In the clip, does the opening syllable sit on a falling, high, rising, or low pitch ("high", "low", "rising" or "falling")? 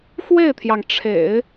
falling